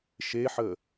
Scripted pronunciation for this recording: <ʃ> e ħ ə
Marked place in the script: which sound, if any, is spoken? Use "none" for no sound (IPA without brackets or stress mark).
ʃ